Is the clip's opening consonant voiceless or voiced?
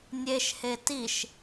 voiced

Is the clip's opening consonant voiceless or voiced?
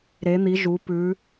voiced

